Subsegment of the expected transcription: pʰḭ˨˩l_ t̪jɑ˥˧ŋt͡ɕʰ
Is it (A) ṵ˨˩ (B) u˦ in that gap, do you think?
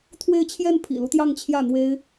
B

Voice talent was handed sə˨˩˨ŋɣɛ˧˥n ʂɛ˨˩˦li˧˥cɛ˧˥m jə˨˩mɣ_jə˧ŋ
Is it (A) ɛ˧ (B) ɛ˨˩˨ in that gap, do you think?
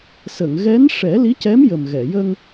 B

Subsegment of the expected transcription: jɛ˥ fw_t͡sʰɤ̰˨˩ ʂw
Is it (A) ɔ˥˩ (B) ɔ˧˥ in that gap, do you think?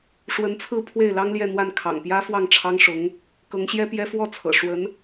A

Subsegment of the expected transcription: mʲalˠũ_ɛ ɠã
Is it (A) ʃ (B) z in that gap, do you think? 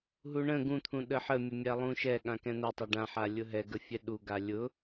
A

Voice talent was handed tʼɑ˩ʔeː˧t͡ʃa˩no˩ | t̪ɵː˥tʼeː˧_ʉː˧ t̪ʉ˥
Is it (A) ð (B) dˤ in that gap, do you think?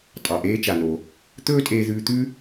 A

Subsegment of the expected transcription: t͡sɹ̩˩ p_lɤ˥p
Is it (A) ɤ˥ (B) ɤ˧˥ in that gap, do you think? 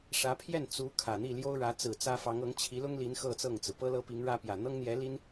A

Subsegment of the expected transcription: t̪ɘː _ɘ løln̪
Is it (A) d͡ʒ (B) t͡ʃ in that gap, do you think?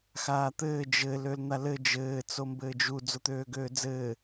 A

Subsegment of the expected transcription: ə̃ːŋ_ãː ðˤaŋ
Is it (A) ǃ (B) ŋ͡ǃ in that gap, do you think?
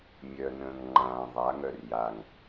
B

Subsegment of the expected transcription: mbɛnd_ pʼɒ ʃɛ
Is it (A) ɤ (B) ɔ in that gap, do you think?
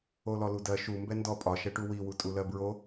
B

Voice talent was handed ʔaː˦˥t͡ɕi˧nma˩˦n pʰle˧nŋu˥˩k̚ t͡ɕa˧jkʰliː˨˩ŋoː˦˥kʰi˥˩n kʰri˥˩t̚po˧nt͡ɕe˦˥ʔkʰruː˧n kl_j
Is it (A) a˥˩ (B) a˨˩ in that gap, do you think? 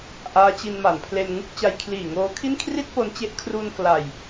B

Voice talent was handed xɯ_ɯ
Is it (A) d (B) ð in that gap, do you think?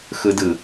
A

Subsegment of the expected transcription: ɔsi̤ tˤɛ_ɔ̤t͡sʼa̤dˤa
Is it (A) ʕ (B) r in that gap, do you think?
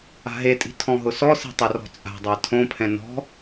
B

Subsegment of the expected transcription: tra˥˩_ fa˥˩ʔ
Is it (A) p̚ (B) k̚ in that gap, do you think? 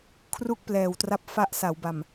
A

